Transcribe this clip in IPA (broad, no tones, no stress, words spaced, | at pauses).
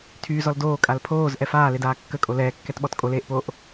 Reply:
tʰyːzɔl doːkʼal pʰoːzʔɛ faːledaː kːəkʼo lɛːkːɛtɓɔt kʼoleːʔpoːʔ